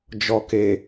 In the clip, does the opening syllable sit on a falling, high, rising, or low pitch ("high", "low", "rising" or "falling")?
low